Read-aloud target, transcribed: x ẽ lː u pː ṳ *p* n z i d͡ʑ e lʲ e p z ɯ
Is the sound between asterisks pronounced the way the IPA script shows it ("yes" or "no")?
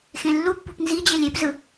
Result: yes